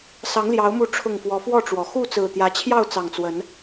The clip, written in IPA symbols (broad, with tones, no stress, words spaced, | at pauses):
sɑ˨˦ŋljɑ˨˦ʊ̯mu˨˦ ʈ͡ʂʰʊ˨˩ŋ fwɔ˨˦fwɔ˥˨ʈ͡ʂwɔ˨˩ xu˥˨t͡sɹ̩˨˩t̪jä˨˦t͡ɕʰjɑ˥˨ʊ̯ t͡sɑ˨˩ŋt͡swə˨˦n